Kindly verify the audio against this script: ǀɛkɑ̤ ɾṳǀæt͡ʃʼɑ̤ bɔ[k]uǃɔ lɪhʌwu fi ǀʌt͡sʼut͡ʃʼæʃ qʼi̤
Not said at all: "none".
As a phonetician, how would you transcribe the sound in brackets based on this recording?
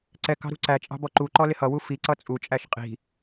ǃ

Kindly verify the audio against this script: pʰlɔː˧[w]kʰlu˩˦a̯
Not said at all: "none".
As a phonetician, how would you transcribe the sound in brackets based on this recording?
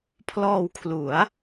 w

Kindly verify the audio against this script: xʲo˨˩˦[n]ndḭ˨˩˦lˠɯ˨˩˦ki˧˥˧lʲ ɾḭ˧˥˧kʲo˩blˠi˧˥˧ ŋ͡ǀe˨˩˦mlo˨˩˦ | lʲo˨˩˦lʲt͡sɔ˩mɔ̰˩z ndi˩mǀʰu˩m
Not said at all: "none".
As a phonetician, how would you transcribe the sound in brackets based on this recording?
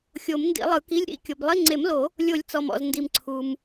m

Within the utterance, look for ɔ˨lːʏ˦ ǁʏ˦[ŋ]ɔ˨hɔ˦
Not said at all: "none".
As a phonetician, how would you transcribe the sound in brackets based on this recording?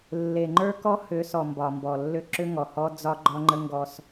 ŋ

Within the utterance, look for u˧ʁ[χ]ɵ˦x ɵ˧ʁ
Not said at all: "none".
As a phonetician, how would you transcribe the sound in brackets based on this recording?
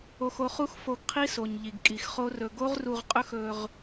qʼ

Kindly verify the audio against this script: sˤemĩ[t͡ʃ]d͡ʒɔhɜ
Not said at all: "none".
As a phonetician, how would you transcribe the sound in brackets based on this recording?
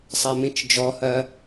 t͡ʃ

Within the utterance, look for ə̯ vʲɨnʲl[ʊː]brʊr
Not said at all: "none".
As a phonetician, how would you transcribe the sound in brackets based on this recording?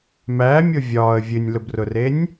ʊ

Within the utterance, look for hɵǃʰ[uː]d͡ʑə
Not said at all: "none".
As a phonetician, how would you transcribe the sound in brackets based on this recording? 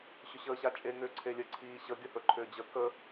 ʏː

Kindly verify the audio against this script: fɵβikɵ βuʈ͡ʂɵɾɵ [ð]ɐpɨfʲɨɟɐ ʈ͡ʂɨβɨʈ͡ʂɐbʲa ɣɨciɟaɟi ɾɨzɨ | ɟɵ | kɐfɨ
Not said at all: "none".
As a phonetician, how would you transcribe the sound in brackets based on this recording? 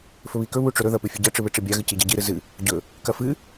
ð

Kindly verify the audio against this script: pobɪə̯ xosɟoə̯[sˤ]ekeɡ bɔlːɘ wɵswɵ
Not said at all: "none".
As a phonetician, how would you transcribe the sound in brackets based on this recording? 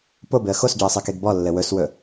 sˤ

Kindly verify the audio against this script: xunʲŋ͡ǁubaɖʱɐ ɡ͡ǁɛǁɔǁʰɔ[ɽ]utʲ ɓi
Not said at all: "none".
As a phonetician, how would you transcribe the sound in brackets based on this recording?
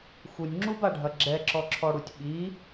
ɽ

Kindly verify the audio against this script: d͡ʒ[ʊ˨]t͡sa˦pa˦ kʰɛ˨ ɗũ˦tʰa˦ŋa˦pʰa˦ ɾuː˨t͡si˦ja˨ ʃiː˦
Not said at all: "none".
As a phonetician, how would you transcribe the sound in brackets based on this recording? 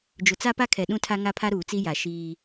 ʊ˨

